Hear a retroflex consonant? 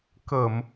no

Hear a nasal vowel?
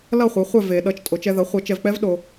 no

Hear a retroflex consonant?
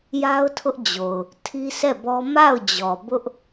no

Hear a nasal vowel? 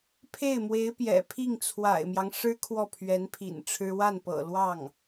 no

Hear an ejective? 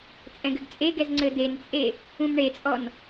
yes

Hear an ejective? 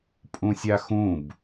yes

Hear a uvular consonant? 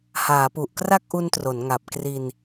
no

